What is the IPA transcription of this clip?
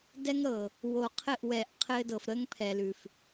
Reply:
d ɛ˦ ŋ ɾ ɤ˨ | w o˨ qʰ ɘ˦˨ ʔ w ɛ˨ ʔ qʰ ɘː˦ d ɤ˨ f ɾ əː˦ ŋ pʰ ɛː˨ l ʉ˨ f

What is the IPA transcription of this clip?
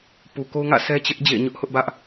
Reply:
p u˨ k o˦ ʊ̯ ŋ ä̰˦˨ sʰ ɛ˦ t͡ɕ ɪ˦ ʔ d͡ʑ ḛ˦˨ ɪ̯ ɲ ʊ˦ ʔ h ʊ˦ ʔ b ä˦ ʔ

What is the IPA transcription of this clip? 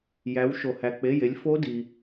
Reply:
j æ˩˧ w ʃ o˩ h æ˩ k͡p e˩˧˩ j e˩˧ lʲ f o˧˥ d i˩

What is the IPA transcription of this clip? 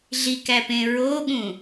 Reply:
ɮ i k æ p ẽ ɹ o ɠ ũ

